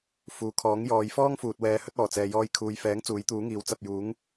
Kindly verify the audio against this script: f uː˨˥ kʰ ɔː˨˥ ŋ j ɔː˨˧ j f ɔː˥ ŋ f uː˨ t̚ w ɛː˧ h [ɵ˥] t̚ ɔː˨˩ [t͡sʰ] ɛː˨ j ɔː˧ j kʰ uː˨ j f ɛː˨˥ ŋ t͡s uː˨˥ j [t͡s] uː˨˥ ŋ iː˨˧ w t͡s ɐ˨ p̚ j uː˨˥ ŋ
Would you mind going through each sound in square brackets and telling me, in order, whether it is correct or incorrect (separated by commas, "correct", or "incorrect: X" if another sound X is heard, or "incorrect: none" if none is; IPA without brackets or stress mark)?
correct, incorrect: t͡s, incorrect: t̪